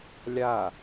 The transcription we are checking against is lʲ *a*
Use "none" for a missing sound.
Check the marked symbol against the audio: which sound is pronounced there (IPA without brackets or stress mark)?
a